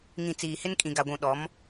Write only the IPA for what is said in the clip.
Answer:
ŋ ĩ˨ t͡s iː˨ h ɪ˦ n kʼ ĩ˨ ɡ a˨ ɡʷ ũ˨ ɗ ɔ˨˦ m

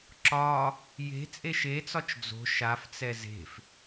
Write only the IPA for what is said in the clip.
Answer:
ǁ ɒ | j e̤ t͡sʼ e ʃ e t͡s ɒ t͡ʃ d͡z o̤ ʃ a f t͡s ɛ z e̤ f

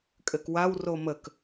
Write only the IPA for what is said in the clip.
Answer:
kʼ ɘ k w a w r o m ə k

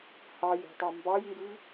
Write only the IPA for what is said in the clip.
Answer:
h ɑ j i̤ tˤ ɑ m b ɑ j ŋ ɡ ɨ

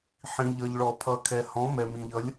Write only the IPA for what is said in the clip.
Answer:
ħ ĩ˩ ʎ ʌ˩ ʎ ɭ ɔ˩ pʰ ʌ˩ kʰ ɛ˩ h ɔ̃˩˥ m ɛ˩ m ĩ˩ ʎ ʌ˩˥ lʲ

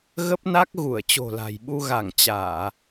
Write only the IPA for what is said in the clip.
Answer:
ɣ ə˦˥ p̚ n a˦˥ k̚ ɣ u˧˩ ə̯ t͡ɕ o̤˨˩ l a̤˨˩ j ɓ u˧ ɣ a˧˩ ŋ t͡ɕ aː˧˩˨

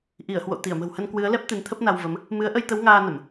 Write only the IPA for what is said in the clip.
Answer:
ʔ i˧˩ ə̯ h w o̰˧˨ t̪ i˧˩ ə̯ m ə̤˨˩ w h ə˧ n k w ɨ˨˦ ə̯ l ɛ˦˥ p̚ t̪ ɨ˨˦ n t̪ʰ ə˦˥ p̚ n a˧ w v ə˨˦ m | m ɨ˨˦ ə̯ ʔ ə˧ j t̪ ə˨˦ w ŋ aː˧ n ə˧˩˨ m

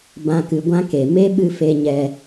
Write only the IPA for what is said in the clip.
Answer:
b ã˨ k ɨ˨ ɡʷ ã˧ k e˨ m e˦ ɓ ɨ˦ f e˧ ɲ ɛ˧

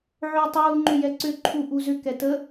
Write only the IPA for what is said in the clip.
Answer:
ʕ ʏː tˤ uː ŋ͡ǃ ʏ j ɛ ǀ ʏ ǃʰ u ʔ u z ʏ k ɛ t ə

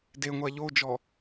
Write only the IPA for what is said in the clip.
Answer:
d e ŋʷ a ʎ o d͡ʒ ɔ

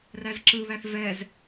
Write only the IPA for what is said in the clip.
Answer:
r æ z ǁ ɯ β æ θ v ɛ z

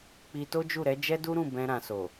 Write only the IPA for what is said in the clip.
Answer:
k͡p i˧ t o˦ d͡ʒ u˦˨ ɾ ɛ˨˦ d͡ʒ ɛ˦ d u˦ ɾ ũ˦˨ b ɛ̃˧ ɾ ã˨ s o˨

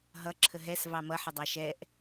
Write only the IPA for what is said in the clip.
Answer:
ɦ ʌ ǁʰ ə ɦ ɛ s v ɑ m ʌ ħ ə dˤ ɑ ʃ ɛ ʔ

